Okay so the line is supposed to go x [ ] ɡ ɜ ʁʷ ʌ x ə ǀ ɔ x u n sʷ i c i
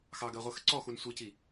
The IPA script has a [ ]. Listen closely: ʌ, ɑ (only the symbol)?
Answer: ɑ